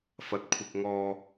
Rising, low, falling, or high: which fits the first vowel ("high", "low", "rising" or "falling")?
rising